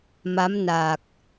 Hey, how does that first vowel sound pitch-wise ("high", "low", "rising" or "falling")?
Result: rising